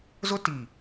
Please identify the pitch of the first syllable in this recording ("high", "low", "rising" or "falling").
high